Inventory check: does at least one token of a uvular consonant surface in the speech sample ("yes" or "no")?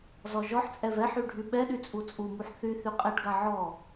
yes